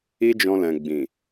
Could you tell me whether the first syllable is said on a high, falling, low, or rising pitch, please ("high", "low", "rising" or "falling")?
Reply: high